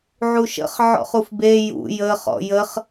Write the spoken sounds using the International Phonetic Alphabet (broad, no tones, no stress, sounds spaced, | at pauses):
ʕ u ʃ ə̰ χ ʕ ɔ̰ χ u f b e j ṵ j ə χ ɔ̰ j ə χ